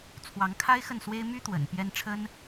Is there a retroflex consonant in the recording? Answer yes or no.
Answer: yes